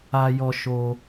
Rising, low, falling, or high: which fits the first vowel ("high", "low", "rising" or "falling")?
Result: high